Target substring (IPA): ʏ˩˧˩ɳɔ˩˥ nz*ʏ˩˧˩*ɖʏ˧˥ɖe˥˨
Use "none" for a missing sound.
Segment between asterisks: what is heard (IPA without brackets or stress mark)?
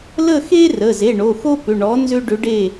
ʏ˥